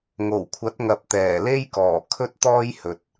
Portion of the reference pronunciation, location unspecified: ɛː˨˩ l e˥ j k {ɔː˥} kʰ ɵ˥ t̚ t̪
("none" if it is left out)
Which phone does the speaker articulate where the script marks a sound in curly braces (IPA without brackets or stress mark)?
ɔː˨˩